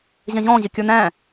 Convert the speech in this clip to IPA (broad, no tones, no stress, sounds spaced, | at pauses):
ʑ ɛ̃ ʑ ɔ̃ː ʑ ɪ kʲ ə˞ n æ̃